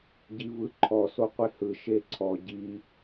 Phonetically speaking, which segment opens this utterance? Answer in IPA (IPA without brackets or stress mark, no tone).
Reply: ɟ